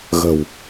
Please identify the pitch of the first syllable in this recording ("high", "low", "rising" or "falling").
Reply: low